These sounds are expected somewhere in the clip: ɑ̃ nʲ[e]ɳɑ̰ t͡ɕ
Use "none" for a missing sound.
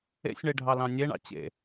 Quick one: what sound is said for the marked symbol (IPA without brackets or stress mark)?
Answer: e